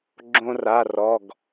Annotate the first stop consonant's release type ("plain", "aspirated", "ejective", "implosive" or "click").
click